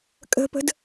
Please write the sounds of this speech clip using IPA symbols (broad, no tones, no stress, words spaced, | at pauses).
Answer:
kʼə̤pə̤d